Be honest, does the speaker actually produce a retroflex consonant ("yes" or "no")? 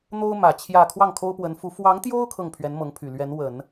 no